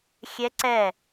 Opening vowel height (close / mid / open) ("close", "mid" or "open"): mid